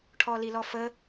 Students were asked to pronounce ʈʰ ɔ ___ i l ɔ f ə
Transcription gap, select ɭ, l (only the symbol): l